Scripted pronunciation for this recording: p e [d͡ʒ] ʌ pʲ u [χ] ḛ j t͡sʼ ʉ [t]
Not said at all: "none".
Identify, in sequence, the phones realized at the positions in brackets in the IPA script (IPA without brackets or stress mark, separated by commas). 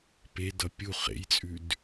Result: d, χ, d